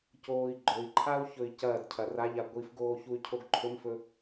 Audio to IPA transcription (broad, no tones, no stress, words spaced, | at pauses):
coːi̯ɡ͡ǃɵi̯ǃʰau̯ çɵi̯cɐːdcʰɐ raʎa ɡʷifɡoː çuy̯cʰoɡǃʰɵmfɵ